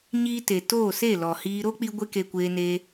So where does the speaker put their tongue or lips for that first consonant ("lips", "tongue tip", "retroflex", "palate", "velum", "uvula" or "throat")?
palate